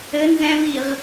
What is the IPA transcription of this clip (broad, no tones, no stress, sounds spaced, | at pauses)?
ɘ n z ɛ̃ v i ʁ